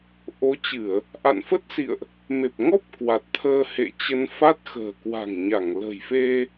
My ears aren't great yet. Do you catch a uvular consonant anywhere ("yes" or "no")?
no